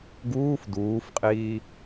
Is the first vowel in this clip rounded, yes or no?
yes